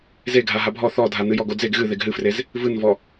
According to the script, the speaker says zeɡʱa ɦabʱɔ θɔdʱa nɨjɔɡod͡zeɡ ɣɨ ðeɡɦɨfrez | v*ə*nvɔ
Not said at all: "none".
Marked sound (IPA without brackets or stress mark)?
ɨ